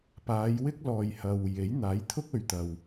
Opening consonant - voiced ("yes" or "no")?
no